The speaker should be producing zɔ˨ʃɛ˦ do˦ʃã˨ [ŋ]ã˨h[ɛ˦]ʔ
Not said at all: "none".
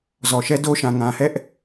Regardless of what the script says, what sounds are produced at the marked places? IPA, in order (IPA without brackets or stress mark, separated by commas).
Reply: ŋ, ɛ˦